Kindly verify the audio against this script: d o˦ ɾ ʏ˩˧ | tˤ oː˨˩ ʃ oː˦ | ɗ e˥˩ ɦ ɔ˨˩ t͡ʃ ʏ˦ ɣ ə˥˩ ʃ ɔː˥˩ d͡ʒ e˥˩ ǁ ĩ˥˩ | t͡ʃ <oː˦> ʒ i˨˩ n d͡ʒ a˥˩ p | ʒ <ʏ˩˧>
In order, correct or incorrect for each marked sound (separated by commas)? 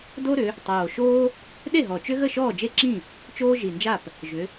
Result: correct, correct